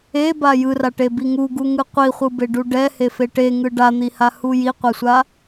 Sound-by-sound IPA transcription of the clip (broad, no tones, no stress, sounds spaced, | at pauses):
e b a j ɯ r a ʈ e b i ŋ u ɡ u ŋ ɯ qʷ i χʷ ɯ b e ɖ u ɖ ɛ h e f e ʈ e ŋ ɯ ɖ a n̪ i h a h u j i qʷ ɛ sʷ a